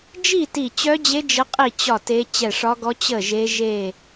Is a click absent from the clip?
yes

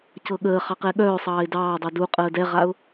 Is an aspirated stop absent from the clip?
yes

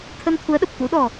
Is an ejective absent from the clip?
yes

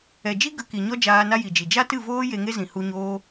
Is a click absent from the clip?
yes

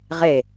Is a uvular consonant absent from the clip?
no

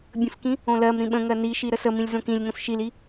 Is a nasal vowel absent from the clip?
no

